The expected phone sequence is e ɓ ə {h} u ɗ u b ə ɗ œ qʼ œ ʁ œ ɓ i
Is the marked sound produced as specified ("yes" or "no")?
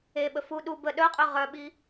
no